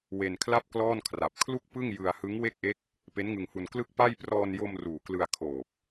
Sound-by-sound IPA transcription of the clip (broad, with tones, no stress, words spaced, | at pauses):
we˧nkʰla˥˩p̚klɔː˥˩nkʰra˨˩p̚ kʰlu˥˩k̚pɯ˥˩ŋ jɯ˧a̯hɯ˦˥ŋ we˥˩k̚ʔe˦˥k̚ | pe˦˥nŋɯ˧ŋhu˧n klɯ˥˩k̚pa˥˩j prɔː˧njo˧m ruː˨˩klɯ˧a̯kʰoː˨˩p̚